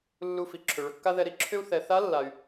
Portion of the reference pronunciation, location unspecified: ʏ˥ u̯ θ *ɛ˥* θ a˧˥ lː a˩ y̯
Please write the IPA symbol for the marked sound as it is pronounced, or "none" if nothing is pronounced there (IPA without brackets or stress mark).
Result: ɛ˩˧